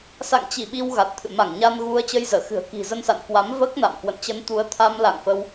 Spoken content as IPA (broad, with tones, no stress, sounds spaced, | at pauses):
s a̰˧˨ ŋ t͡ɕ i˧˩ ɓ i˧ w ɣ a˨˩ t̚ t̪ʰ ɨ̰˧˨ m a˧˩ ŋ ɲ a˧ n ɣ u˧ ə̯ t͡ɕ ə˧ j z əː˧˩ x ɨ̤˨˩ ə̯ k i̤˨˩ z ə˧ n s a̰˧˨ n k w a˨˦ m v əː˦˥ k̚ n a̰˧˨ m k w ə̰˧˨ n t͡ɕ ə˧ n t̪ u˨˦ ə̯ t̪ʰ a˧ m l a̰˧˨ ŋ f ə˧ w